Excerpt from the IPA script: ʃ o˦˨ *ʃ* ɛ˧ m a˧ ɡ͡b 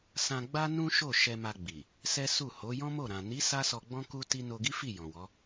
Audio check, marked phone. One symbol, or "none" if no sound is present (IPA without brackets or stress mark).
ʃ